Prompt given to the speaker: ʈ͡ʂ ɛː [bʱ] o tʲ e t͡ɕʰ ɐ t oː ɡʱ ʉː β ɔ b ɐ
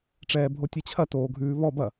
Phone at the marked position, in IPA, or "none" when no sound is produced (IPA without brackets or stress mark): bʱ